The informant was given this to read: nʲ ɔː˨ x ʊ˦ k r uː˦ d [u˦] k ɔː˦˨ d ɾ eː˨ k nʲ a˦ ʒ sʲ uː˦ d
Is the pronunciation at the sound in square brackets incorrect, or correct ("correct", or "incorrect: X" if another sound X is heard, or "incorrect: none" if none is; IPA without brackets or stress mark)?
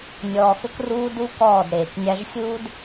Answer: correct